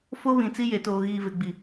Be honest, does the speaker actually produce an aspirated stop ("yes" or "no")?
no